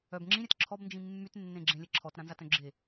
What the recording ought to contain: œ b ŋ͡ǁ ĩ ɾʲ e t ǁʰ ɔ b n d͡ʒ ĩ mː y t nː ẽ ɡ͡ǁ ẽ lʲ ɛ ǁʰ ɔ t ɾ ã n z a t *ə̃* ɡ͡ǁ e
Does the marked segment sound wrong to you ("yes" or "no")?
yes